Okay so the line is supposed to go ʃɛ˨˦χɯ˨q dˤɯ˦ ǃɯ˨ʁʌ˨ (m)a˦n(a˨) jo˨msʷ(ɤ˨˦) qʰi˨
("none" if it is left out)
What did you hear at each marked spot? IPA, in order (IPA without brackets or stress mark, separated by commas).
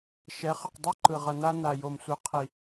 n, a˨, ɯ˨˦